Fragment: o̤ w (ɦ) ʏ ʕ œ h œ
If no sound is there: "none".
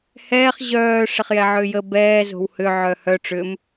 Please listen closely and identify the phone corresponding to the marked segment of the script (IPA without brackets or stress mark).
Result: h